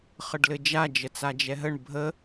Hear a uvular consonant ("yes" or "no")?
yes